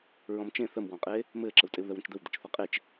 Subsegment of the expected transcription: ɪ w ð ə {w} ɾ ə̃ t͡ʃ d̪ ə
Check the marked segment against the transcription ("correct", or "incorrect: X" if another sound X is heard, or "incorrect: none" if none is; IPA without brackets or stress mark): correct